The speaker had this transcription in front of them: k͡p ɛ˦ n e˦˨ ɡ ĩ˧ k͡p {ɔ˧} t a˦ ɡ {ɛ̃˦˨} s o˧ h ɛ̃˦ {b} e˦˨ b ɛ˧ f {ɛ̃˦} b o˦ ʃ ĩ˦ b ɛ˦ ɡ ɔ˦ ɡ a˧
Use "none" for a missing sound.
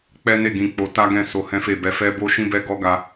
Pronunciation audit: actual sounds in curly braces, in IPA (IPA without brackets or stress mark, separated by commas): o˧, ɛ̃˦˨, f, ɛ˦